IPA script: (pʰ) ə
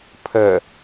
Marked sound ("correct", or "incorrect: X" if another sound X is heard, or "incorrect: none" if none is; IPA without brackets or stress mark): correct